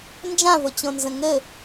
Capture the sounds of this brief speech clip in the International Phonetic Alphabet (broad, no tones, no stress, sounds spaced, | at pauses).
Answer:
n d͡ʒ ã v o t͡ɕ õ n z ə̃ ŋ ɘ